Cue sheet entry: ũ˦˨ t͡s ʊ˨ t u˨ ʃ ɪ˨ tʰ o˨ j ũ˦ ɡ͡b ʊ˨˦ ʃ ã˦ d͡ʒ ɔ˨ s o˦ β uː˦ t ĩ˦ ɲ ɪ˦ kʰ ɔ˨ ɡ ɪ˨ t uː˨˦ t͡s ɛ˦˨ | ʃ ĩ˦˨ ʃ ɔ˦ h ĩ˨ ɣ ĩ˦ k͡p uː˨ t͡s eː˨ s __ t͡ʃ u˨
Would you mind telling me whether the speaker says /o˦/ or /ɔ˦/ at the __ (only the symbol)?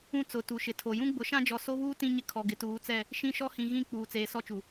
ɔ˦